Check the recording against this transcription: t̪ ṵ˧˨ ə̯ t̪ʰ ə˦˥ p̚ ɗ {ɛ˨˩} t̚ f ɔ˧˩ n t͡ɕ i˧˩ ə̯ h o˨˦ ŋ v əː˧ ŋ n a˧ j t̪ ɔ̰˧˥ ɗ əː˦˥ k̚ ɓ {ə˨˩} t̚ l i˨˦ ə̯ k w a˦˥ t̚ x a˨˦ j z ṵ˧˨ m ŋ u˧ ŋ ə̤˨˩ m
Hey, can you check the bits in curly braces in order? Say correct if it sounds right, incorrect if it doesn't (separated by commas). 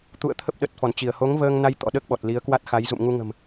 incorrect, incorrect